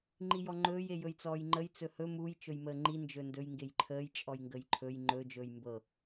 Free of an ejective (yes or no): no